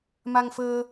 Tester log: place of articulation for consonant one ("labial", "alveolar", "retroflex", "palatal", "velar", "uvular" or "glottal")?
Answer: labial